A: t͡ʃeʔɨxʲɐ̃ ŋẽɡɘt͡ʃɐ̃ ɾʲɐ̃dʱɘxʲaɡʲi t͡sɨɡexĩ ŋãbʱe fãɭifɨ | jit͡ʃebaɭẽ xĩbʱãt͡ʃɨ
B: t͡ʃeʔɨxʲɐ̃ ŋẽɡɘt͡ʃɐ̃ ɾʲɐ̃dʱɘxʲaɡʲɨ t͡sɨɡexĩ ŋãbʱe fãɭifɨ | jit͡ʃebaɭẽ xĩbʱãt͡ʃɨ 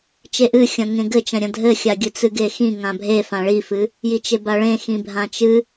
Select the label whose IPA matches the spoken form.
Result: B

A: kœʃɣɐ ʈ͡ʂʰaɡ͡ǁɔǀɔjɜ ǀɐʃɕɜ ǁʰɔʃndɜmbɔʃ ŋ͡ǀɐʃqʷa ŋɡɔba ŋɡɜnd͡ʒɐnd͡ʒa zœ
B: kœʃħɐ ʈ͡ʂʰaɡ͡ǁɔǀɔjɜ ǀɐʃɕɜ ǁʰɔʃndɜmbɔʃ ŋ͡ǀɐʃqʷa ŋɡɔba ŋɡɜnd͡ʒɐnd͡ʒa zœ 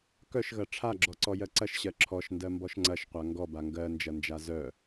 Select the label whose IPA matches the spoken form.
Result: A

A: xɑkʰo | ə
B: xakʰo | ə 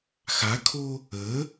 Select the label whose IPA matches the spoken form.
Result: B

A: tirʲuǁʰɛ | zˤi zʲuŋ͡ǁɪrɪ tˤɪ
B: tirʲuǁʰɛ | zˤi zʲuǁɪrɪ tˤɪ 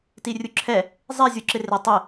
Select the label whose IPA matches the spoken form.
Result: B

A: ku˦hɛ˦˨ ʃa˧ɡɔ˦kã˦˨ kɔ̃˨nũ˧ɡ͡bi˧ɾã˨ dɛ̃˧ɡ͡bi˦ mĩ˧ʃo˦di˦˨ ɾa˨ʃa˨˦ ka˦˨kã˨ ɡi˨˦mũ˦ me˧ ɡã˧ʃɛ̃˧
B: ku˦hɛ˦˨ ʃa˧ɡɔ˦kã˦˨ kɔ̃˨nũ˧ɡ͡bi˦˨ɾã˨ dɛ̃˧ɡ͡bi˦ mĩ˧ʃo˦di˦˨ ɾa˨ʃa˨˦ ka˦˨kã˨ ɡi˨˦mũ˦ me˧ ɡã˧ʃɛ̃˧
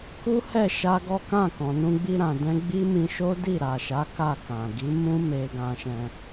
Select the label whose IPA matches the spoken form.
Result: A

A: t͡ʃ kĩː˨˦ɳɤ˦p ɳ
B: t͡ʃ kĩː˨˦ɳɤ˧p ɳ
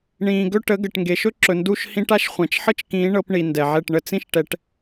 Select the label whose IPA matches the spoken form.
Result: B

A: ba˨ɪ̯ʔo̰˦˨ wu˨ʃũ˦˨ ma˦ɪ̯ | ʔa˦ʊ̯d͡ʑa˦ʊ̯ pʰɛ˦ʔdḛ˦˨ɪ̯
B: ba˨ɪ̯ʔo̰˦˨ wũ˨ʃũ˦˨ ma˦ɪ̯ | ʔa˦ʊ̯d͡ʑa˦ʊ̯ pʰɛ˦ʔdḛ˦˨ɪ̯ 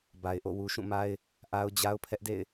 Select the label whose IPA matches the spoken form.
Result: A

